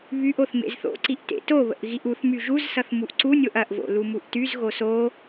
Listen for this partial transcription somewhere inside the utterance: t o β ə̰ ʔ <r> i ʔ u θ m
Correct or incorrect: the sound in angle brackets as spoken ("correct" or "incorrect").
incorrect